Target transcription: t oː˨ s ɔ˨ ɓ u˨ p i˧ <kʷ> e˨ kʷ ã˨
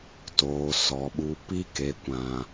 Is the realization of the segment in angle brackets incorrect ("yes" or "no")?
yes